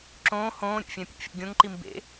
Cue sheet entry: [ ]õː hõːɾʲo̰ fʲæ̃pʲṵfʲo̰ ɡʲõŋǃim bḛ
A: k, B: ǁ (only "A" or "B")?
B